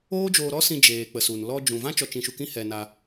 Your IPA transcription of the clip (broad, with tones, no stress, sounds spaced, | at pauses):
oː˦ d͡ʒ oː˧ ɾ ɔ˦ s ĩ˧ d͡ʒ eː˨ k͡p ə˨ s u˨ n l ɔ˧ d͡ʒ ũ˨ v ã˦ t͡ʃ ɔ˧ t͡ʃ ĩ˧ ʃ u˧ k ĩ˦ h ɛ˧ n a˧